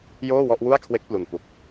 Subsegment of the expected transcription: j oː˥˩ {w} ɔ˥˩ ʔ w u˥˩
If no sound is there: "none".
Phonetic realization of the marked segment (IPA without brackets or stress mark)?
w